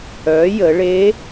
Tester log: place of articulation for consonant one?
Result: palatal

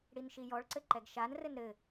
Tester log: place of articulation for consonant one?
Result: retroflex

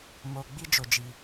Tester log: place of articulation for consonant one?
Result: labial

